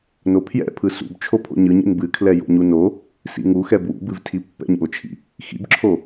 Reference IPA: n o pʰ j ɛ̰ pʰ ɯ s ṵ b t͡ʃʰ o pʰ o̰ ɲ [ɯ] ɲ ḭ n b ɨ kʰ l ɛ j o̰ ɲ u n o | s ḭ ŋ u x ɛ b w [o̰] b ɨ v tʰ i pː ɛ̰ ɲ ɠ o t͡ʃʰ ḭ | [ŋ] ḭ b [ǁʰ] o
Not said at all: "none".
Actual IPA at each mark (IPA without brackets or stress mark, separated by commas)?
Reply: ɯ, ṵ, x, ǁʰ